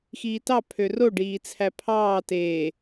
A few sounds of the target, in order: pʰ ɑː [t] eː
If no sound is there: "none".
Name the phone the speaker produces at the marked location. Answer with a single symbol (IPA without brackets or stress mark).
t